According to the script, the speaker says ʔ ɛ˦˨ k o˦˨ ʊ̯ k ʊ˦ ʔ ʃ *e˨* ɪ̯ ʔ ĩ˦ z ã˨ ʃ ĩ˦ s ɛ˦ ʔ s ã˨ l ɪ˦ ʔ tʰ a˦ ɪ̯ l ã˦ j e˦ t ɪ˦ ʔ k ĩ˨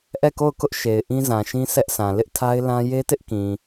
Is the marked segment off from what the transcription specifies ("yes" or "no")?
no